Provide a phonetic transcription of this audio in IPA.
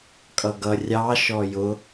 kʼʌɡʌ rʲɑ ʃɔjʊ

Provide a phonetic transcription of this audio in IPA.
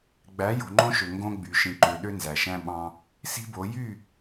ɡ͡bæ˨˦ jo̤˨ŋ͡ǃõ˦ʃø˨ ŋɡõ˦ ɡ͡by˨ ʃĩ˨ǃø˨ ɗø˦nzæ˨ʃæ̃˦ ɓɑ̃˦ | si̤˦bo˨˦ jy˦˨

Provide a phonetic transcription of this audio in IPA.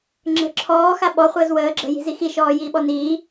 ŋ͡ǁə̤ ǁʰɔːxa ɓɔχʷəːz wəː ɡ͡ǁə̤ji̤zi xiʃɔːjiːɓɔ niː

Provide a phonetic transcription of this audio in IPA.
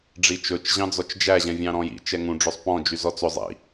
ɖ͡ʐit͡ʃɵt͡ʃ ʑɑ̃d͡zɔt͡ʃd͡ʒæ ʑɛ̃vʲɑ̃ɾɔ̃jḭ t͡ʃɛŋũ ɖ͡ʐøsˤpɔ̃ d͡ʒyzɔt͡sɵ zˤḭ

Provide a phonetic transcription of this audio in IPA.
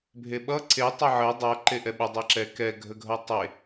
bʱeɓʌ ǀe tˤəʕə dˤʌ ǃeʔɛɓə dˤɛǁɛ kɛ ɡʱəɡʱʌtˤe

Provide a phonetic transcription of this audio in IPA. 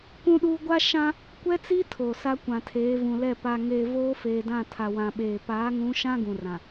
kũ˦ɗuː˦ ɡʷa˦ʃã˦ | kʷɛ˦t͡si˦ tʰoː˨sa˦ kʷã˨tʰeː˨˦vũ˨lɛ˦˨ pa˨ŋeː˨ voː˦feː˨ dã˦˨tʰa˨wã˨ɓeː˨ paː˨˦ŋũ˨˦ʃã˦ ɡũ˨rã˨

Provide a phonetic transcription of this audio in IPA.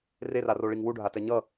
reraroɭiŋ wuɖʱatɛ ɲʌ

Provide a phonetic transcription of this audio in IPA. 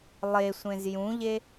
lˠesʷẽz jũʎe

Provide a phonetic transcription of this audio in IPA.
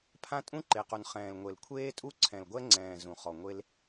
pʰã˦tʼũ˦ǃe˨qu˨n χɛ̃ː˨lŋʷe˨l kʷʰeː˦tʼu˦ǀʰɛ̃˨lɡʷɛ˦ ŋ͡ǀɛ̃ː˨ zũ˨χɔ˨ŋʷe˦l

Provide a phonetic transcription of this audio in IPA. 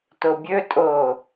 tobʲɵtʼo

